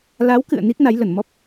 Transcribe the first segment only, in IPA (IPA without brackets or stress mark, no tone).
l